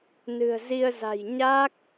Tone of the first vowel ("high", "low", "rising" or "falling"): low